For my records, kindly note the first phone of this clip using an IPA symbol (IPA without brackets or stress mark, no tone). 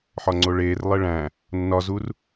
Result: ħ